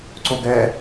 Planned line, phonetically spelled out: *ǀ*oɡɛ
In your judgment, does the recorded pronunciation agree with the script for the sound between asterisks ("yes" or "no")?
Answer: yes